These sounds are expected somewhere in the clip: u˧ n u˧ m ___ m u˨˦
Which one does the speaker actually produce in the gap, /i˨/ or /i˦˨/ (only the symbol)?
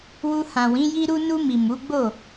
i˨